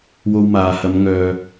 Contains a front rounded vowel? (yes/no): yes